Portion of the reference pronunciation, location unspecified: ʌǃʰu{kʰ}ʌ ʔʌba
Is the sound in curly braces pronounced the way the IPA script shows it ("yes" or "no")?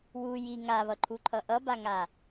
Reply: no